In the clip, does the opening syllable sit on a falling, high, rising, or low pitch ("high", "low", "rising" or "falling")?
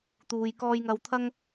low